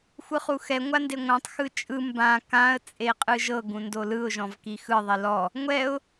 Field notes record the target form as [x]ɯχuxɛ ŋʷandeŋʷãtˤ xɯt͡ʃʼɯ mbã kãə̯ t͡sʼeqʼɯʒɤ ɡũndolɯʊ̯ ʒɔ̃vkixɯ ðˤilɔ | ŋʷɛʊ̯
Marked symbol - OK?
no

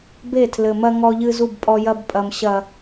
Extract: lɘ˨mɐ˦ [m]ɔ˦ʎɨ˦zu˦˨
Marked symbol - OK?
no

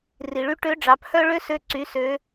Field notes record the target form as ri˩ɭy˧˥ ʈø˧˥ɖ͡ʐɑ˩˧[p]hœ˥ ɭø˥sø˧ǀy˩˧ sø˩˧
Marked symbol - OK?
yes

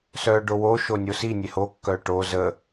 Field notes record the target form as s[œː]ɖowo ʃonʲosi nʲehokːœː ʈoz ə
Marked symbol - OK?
yes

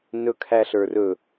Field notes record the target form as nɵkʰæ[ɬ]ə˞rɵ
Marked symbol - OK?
yes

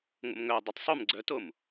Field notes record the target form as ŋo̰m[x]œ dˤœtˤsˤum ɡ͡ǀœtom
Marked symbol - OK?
no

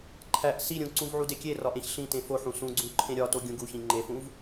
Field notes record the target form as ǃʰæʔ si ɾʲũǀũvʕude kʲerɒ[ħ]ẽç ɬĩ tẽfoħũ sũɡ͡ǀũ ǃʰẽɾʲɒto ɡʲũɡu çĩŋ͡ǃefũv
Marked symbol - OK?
no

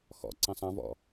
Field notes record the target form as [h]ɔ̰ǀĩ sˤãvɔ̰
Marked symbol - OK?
no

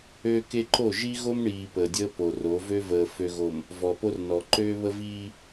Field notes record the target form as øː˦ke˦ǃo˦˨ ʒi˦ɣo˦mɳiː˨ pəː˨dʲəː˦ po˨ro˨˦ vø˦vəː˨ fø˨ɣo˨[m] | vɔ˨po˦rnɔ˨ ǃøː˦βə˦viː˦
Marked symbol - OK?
yes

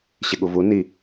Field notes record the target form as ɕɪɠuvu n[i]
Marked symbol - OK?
yes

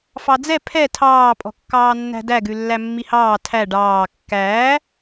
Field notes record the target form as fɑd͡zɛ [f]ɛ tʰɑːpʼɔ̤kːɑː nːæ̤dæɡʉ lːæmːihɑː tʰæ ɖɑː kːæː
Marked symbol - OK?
no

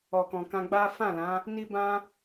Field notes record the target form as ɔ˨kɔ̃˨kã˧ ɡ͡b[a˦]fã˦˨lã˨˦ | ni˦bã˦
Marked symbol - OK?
yes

